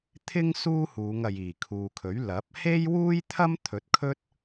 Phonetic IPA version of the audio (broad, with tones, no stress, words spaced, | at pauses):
t̪ʰɪ˥ŋ suː˥huː˨˧ŋɐ˨j iː˨˩kʰuː˨kʰɵ˨˥ɥ lɐ˨˥p̚ he˥jwuː˥jt̪ʰɐ˥m t̪ʰɵ˨˥t̚kʰɵ˥t̚